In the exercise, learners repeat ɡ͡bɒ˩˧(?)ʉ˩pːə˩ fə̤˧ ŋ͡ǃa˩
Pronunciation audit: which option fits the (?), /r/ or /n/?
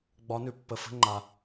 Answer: n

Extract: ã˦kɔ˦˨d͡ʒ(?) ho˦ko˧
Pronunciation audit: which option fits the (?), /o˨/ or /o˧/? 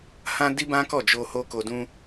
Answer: o˧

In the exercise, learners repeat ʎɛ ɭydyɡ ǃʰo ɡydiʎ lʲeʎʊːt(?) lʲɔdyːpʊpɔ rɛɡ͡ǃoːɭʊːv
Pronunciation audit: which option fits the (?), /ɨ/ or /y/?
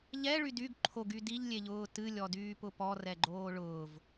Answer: ɨ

